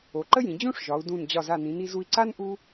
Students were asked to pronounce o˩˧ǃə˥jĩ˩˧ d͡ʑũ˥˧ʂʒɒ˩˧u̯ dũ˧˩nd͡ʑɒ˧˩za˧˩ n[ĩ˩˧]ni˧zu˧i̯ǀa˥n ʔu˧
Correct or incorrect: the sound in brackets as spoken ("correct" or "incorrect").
correct